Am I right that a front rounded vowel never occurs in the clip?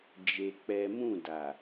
yes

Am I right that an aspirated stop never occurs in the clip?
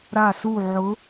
yes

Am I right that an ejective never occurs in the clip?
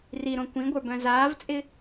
no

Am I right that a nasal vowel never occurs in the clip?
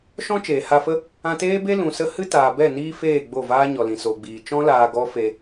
no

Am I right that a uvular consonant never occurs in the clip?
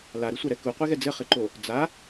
no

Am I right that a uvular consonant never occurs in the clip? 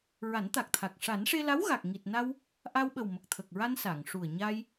yes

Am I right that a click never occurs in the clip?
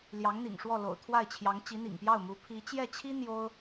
yes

